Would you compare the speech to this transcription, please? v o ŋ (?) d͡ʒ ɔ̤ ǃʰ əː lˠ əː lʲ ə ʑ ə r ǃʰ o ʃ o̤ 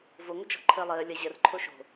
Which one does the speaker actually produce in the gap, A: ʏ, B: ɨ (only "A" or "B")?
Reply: A